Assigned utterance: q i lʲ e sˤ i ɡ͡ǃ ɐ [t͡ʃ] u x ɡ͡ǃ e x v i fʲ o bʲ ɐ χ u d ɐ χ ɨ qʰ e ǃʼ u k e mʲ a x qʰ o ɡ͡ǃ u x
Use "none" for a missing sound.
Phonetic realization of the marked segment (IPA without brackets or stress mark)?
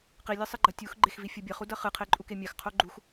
tʲ